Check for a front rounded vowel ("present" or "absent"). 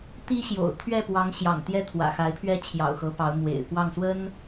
absent